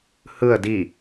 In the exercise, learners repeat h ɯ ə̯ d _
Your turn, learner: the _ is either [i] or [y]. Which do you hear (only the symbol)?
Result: i